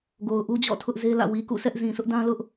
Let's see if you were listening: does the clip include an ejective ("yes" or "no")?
no